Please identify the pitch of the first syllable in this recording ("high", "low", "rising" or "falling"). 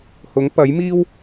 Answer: rising